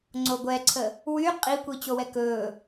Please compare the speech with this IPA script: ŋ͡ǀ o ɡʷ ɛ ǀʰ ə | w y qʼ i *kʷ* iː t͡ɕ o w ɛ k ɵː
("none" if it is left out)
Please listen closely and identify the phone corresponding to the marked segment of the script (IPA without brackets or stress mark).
kʷ